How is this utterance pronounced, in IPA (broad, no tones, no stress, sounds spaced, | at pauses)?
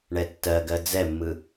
ɳ ɛ tː ɜ ɡ ɜ d͡z ɛ mː ɯ